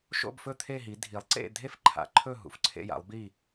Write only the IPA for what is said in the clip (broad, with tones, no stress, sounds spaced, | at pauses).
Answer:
ʃ o̰˥˧ b f ɵ˥˧ t̪ʰ e˥˧ ɦ i˨˦ dʱ i˨˦ lˠ ǀ ḛ˥˧ dʱ e˥˧ f ǃʰ a̰˨˦ ǃʰ ɵ˥˧ ɦ ṵ˨˦ f ǀʰ ḛ˥˧ j a̰˨˦ lˠ b i˥˧